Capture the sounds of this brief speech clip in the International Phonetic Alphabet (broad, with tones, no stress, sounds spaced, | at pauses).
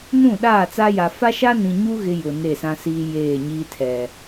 n ũ˦˨ ɗ aː˦˨ t͡s a˦ j a˨ f a˦ ʃ a˦ n ĩ˨ ɲ u˦ ɣ ɪ˦ j ʊ˨ n e˦˨ s ã˦ s iː˦ j eː˦˨ ɲ iː˦ tʰ ɛ˨